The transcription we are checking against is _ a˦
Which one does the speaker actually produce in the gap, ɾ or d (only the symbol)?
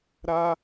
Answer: ɾ